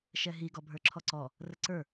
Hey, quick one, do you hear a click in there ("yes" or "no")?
yes